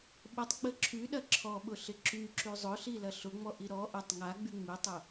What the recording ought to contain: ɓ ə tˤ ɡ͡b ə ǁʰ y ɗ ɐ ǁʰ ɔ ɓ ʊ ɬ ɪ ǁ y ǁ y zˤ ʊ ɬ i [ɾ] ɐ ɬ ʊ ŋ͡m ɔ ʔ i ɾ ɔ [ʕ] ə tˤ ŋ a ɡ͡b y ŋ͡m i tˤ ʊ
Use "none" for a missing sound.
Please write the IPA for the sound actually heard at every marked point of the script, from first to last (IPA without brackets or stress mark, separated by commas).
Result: l, ʔ